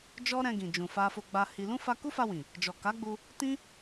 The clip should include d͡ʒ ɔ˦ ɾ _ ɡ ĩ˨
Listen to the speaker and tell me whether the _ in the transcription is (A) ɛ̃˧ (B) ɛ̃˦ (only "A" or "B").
A